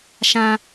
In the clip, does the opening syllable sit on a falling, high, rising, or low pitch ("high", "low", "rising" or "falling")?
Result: high